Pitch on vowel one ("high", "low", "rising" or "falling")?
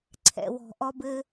low